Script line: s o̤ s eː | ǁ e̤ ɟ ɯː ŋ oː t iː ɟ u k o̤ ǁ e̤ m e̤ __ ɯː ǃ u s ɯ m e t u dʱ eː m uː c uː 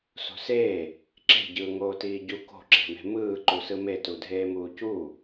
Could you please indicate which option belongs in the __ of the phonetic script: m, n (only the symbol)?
m